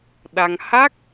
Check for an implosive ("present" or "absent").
present